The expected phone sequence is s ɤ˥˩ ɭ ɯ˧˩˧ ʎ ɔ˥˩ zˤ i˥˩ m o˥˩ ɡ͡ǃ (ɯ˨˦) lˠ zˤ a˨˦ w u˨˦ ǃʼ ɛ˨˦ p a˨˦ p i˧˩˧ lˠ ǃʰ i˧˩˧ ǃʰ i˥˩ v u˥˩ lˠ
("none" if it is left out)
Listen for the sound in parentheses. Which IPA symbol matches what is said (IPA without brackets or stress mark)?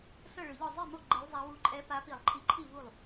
ɯ˨˦